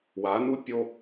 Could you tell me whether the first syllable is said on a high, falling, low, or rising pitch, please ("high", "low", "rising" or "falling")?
rising